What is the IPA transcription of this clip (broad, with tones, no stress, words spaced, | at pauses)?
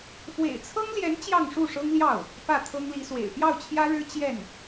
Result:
fwḛ˨˩ɪ̯t͡sʰɤ˥ŋljɛ˧˥n t͡ɕjɑ˥˧ŋʂu˥˩ʂɤ˥ŋljɑ˥˩ʊ̯ | pä˥˩t̪ʰɤ˥ŋli˧˥swḛ˨˩ɪ̯ pjɑ˥˩ʊ̯t͡ɕʰjä˥ɻɻ̩˥ t͡ɕjɛ˥˩n